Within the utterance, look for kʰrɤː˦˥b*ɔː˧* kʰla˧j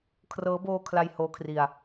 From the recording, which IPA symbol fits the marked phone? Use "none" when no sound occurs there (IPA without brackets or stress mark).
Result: oː˧